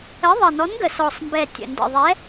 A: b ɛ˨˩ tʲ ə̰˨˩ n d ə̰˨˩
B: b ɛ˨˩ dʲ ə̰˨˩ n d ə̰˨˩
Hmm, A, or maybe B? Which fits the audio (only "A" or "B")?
A